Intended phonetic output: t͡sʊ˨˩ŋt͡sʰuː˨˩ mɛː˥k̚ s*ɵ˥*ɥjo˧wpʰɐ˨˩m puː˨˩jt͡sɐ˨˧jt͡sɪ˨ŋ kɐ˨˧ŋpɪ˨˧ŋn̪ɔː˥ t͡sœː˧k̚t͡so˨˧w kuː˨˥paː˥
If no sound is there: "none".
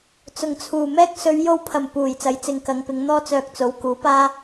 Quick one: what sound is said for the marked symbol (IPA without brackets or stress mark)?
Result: ɵ˨˧